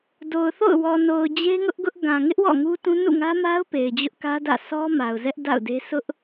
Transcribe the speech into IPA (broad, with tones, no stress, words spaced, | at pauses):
do˨ʊ̯θo̰˦˨ʊ̯ wɔ˨no˨ʊ̯ d͡ʑe˦ŋʊ˦ʔɡʊ˦ʔ ɡã˨ŋɪ˦ʔ wɔ̰˦˨ŋu˦tũ˦ nṵ˦˨ŋä˦ma˦ʊ̯ pe˨ɪ̯d͡ʑʊ˦ʔkä˦dä̰˦˨ sʰɔ˦ ma˨ʊ̯ zɛ˦ʔda̰˦˨ʊ̯de˦ sʊ˦ʔ